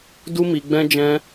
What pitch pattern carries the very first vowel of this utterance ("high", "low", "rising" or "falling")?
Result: high